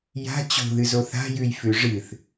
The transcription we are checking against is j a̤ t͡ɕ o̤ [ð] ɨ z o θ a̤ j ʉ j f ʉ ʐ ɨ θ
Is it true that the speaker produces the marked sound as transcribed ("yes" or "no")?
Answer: yes